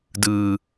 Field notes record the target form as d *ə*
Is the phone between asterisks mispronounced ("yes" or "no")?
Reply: yes